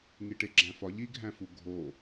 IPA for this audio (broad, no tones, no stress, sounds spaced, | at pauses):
ŋ i ʈ e ɡ͡ǁ æ̃ f ɒ ʎ i ɡʱ æ̃ f u ɡʱ o